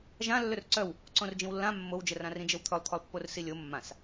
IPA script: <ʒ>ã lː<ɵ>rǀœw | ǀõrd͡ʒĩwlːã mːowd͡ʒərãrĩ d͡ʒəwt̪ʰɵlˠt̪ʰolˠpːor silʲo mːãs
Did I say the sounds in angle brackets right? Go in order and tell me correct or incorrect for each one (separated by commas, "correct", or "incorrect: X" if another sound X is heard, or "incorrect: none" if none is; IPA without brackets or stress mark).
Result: correct, correct